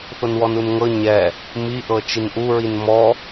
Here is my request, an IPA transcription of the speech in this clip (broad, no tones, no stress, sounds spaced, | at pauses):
θ o n w ɔ n u n ŋ ɤ ɲ ɛ | m i ʔ ɤ t͡ʃ i n ʔ u ɹ i n m ɔ